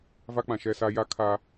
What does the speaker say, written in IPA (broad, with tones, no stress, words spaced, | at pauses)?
va˦k͡pã˨ʃɛ˦˨sa˦ ja˦kʰa˦